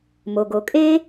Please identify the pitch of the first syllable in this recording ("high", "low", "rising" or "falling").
low